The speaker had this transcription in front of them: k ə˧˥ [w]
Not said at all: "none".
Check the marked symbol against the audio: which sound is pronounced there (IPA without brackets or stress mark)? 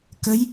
j